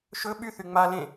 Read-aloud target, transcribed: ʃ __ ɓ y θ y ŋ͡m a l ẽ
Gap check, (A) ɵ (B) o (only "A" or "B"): A